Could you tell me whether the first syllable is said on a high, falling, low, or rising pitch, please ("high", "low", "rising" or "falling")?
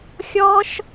high